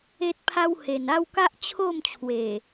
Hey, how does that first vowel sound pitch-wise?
high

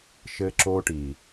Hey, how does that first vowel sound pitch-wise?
high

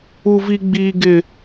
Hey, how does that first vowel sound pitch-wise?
high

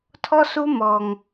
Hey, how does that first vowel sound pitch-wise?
high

